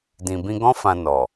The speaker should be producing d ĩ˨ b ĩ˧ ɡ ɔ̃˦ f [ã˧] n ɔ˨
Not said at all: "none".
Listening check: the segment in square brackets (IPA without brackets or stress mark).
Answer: ã˧